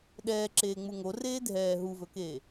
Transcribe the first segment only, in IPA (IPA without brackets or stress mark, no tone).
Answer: ɗ